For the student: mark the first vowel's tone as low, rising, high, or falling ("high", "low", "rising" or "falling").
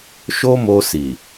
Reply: high